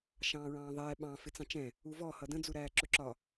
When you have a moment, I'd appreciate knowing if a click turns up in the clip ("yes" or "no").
yes